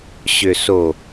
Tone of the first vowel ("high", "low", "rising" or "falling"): low